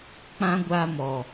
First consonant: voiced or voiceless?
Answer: voiceless